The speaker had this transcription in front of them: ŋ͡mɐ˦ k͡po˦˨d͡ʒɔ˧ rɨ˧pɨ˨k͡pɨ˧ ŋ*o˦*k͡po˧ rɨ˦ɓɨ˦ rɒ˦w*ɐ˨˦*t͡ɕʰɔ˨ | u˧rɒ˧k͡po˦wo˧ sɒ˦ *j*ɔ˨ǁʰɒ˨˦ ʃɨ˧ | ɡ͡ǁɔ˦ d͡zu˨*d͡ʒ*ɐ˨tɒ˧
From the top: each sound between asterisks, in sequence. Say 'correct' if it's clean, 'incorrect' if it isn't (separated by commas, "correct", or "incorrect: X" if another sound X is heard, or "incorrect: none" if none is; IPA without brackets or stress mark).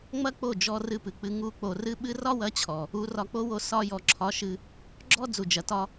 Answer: incorrect: u˦, correct, correct, correct